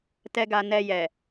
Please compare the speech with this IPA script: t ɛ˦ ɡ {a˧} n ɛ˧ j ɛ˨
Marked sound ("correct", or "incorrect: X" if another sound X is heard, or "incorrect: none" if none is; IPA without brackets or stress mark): correct